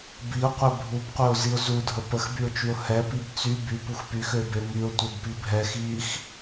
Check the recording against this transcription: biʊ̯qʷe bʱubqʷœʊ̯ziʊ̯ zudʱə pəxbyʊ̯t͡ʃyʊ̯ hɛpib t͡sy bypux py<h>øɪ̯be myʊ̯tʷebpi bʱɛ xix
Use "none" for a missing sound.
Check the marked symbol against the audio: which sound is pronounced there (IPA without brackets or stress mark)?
x